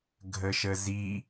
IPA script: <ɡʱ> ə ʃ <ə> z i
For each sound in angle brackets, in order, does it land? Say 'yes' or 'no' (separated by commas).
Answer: yes, yes